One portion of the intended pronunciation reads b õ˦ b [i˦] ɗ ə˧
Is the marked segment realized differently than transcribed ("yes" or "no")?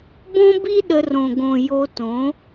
no